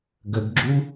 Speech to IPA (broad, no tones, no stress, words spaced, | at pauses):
ɡəɡɡ͡ǁu